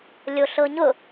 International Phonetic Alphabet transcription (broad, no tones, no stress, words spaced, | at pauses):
lʲoɬɤɲʊ